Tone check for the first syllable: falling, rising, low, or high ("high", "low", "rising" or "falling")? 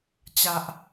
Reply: low